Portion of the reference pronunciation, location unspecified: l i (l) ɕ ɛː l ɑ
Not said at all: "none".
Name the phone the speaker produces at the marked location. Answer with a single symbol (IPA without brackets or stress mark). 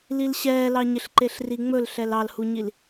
l